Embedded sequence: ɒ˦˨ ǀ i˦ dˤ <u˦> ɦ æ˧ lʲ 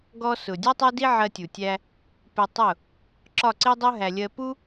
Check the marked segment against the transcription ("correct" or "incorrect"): correct